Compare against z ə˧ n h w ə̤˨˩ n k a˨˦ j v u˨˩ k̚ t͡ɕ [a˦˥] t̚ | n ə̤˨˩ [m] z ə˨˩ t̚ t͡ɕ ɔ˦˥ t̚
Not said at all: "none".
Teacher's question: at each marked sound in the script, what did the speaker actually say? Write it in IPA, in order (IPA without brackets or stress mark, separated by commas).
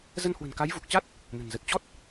a˦˥, n